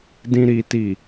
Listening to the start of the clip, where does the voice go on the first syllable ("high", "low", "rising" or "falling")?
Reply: low